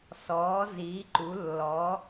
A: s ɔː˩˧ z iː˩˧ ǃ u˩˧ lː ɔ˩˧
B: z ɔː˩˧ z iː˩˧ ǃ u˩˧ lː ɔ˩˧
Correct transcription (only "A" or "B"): A